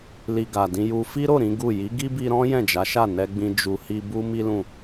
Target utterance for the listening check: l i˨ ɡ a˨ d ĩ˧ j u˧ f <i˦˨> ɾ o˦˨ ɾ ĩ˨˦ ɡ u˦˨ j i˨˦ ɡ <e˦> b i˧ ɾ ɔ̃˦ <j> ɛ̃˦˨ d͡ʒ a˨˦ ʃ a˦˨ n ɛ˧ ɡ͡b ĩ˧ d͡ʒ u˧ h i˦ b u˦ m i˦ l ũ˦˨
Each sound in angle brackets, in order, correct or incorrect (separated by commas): incorrect, incorrect, correct